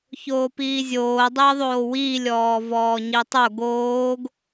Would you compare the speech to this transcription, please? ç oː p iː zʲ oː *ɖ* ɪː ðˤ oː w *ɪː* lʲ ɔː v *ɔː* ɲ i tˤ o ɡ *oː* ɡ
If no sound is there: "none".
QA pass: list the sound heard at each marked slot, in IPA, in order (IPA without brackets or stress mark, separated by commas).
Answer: dˤ, iː, ɔː, oː